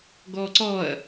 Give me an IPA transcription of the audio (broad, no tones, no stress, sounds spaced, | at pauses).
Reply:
ɡ ɔ ǀ ɔ ɐ̯